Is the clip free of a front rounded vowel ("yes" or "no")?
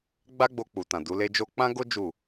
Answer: yes